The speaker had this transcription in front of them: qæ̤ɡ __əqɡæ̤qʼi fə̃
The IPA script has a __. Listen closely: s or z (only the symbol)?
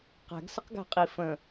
s